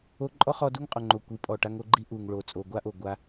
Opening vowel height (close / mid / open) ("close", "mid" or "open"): mid